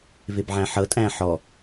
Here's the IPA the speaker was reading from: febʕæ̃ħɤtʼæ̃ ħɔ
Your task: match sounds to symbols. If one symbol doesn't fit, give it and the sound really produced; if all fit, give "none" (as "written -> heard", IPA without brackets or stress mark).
f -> v